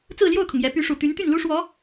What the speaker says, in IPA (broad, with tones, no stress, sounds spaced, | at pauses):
t͡s ɹ̩˥˧ l j o˥˩ ʊ̯ kʰ ʊ˩ ŋ j ɛ˧˥ p y˧˥ ʂ u˨˩ t̪ y˧˥ n t̪ y˥˩ n l u˥ ʂ w ɔ˧˥